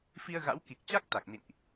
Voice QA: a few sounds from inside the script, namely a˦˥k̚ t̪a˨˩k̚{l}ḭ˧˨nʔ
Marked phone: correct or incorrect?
incorrect: n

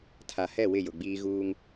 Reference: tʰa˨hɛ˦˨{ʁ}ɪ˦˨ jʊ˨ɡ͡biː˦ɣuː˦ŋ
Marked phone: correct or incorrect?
incorrect: w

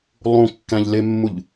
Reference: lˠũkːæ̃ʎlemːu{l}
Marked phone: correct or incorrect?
incorrect: ʎ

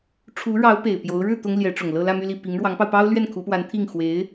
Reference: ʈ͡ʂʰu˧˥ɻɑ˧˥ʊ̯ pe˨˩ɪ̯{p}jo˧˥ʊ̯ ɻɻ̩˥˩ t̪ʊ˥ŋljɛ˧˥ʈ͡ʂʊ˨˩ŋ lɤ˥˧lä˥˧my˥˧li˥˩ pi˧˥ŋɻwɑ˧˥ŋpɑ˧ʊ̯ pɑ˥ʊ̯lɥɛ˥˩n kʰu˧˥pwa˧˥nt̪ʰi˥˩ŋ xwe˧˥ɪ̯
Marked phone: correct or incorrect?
correct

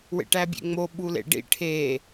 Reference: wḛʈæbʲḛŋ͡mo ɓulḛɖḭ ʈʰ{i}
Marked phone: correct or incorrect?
incorrect: e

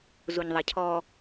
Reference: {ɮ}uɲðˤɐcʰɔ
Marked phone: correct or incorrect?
incorrect: z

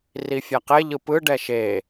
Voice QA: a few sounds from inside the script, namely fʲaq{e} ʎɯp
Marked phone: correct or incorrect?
correct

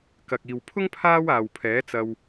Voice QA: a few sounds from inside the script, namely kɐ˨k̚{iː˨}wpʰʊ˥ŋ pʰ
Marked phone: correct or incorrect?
correct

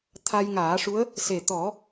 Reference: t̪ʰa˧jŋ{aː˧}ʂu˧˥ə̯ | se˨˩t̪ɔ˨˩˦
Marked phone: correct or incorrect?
incorrect: aː˨˩˦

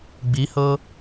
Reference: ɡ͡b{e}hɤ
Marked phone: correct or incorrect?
incorrect: i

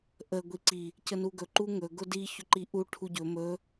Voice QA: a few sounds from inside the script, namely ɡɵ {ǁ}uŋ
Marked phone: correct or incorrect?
incorrect: ǃ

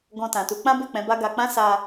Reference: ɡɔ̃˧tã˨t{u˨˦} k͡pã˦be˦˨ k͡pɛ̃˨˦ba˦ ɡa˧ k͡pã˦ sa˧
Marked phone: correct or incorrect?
correct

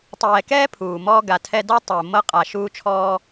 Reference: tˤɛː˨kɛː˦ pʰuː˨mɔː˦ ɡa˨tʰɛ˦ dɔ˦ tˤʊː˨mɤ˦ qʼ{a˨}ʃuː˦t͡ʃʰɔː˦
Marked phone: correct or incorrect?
correct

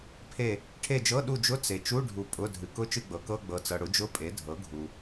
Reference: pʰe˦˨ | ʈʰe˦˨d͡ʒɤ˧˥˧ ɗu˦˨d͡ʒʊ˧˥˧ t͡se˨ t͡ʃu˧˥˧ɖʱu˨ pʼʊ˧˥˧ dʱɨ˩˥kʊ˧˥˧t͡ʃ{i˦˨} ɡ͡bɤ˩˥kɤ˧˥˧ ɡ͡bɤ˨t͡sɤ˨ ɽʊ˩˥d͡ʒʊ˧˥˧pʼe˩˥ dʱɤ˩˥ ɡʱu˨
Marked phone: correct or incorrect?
incorrect: ɨ˦˨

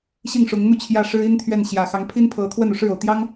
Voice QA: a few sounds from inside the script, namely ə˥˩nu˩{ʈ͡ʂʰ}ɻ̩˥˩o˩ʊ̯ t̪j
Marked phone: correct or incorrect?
incorrect: ʂ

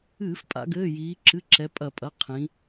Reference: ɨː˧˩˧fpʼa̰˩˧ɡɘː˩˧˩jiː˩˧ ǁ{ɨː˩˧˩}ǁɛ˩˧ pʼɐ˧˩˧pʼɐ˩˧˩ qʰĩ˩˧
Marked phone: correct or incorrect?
incorrect: ɨ˩˧˩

